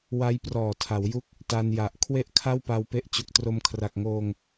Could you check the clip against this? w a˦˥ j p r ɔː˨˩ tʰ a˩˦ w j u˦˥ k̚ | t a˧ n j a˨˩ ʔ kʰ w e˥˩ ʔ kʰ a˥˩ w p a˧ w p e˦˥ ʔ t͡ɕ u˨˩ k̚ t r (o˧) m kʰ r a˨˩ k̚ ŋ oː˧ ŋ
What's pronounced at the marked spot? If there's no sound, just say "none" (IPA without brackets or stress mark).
o˧